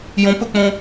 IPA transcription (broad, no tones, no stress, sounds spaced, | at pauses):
j õ p ɘ k͡p õ